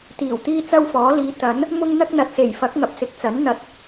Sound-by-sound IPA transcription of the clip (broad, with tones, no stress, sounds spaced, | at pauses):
t̪ iː˨˩ w t̪ iː˥ t͡s ɐ˥ w f ɔː˨˥ l iː˨˧ t̪ ɐ˨˥ n | m ʊ˥ ŋ n̪ ɐ˥ k̚ n̪ ɐ˨ t̚ s e˨˩ j f ɐ˨˥ k̚ ŋ ɐ˨ p̚ s ɪ˨ k̚ t͡s ɐ˨˥ n n̪ ɐ˧ t̚